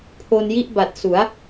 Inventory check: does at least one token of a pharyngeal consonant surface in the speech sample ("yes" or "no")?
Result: no